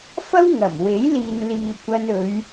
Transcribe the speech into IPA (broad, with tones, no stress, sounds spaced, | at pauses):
f ɐ˥ w ŋ ɐ˨˩ m w e˨˥ j l iː˨ n l iː˨ kʷ ɐ˧ n ɵ˨˧ ɥ